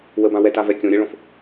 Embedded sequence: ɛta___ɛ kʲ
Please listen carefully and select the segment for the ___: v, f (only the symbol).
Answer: v